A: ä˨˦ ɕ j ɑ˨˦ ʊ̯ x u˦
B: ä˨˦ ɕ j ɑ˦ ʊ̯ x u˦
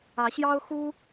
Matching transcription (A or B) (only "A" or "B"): B